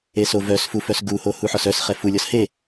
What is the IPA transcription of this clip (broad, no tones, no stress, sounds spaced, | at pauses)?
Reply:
e s o v œ s f u f œ s ɡ u h o h u ħ ɔ s œ s χ ɛ f u lʲ ɔ s h e